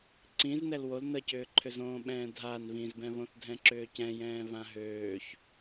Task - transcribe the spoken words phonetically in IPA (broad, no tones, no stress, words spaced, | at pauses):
ǀĩznɛl wol nəcʏːǃʰʏzõː ɓɛ̃ːdʱan βĩzbɛ̃βõθ dʱɛ̃ǁʏːcɛ̃jɛ̃ː βãɦøːç